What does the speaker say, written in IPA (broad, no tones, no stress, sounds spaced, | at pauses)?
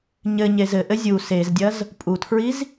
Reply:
ɲ ɘ ɲ e z ɘ ʔ ɘ zʲ u s e z dʲ ɐ z | pʼ u tʰ ɹ i z